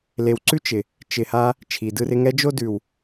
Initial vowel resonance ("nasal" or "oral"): oral